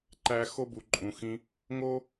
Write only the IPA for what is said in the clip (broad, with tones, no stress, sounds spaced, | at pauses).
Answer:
ǃ æ˦ x o˦ b u˨ ǃʼ ũ˨ x ĩ˧ | ŋ o˦